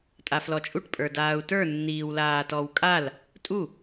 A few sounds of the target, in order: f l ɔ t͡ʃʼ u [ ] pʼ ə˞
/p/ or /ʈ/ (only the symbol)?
ʈ